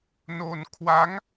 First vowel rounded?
yes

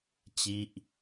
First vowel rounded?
no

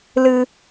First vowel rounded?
no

